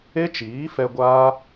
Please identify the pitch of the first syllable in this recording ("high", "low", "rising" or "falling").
high